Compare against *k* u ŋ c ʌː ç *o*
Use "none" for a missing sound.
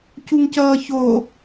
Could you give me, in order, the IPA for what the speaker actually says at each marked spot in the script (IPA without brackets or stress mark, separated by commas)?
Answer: c, o